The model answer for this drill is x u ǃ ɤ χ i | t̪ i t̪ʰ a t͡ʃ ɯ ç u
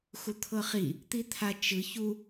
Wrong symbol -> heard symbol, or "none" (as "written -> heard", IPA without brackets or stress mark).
ǃ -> t̪ʰ